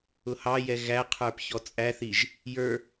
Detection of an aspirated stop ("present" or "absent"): present